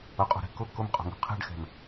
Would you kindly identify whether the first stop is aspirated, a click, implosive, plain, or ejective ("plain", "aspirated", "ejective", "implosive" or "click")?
ejective